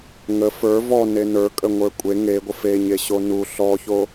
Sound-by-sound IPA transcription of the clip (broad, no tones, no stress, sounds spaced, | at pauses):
ŋ ə f ə˞ v ɔ n e n ə˞ kʼ ə ŋʷ ə˞ kʷʼ e ŋ e ɡʷ ə f e ɲ e ɕ o n u ɬ ɔ ç o